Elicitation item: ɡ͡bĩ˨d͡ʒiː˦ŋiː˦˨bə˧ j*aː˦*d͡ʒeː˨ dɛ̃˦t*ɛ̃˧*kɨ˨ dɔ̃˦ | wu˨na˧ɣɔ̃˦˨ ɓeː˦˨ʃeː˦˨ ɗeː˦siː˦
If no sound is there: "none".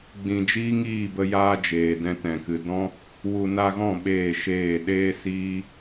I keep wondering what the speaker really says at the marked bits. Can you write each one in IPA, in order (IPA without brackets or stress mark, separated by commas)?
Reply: aː˦, ɛ̃˨